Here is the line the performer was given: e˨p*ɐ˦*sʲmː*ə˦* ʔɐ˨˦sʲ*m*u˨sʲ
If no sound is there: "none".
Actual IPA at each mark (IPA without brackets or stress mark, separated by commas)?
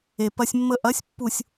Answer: ɐ˦, ə˦, pː